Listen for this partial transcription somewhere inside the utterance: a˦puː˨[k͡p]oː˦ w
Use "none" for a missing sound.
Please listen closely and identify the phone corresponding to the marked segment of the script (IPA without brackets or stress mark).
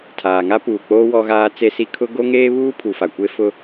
k͡p